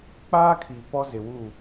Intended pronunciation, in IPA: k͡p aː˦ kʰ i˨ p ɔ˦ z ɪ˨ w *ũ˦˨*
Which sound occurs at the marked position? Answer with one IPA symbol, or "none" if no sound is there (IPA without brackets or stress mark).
u˦˨